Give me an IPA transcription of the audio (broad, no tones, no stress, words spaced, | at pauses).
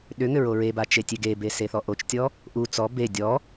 ɗʏŋʏ ɹoɹeba t͡ʃetʲeɡebe seθɔʔot͡ʃtʲɔ | ʔu t͡sɔ be dʲɔ